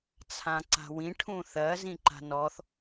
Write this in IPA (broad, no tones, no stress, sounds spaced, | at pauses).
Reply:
t͡sʰ ã ǀ a̤ w ĩ ʈʰ ũ θ ɜ z ĩ ǃ a̤ n ɔ θ